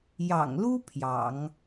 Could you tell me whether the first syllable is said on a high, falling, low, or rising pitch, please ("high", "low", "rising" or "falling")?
low